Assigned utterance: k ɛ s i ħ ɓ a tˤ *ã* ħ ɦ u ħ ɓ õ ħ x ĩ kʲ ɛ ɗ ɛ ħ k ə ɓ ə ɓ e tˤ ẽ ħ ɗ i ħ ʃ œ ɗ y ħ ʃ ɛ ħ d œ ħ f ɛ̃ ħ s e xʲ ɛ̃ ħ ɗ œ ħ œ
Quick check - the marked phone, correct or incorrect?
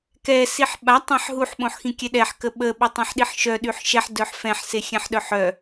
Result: correct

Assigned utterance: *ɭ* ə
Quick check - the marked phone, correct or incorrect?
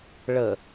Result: correct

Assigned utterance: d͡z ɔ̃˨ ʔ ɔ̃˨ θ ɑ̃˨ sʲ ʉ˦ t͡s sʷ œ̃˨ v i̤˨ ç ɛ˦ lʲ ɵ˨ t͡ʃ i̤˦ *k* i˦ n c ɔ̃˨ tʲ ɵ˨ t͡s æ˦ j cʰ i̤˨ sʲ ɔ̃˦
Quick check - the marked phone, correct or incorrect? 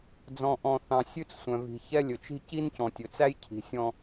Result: incorrect: c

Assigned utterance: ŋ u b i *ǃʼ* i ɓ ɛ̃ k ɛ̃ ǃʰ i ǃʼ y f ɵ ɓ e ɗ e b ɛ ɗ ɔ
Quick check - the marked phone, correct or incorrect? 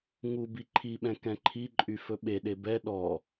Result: incorrect: ǃʰ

